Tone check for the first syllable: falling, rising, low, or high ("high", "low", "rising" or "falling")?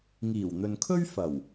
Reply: low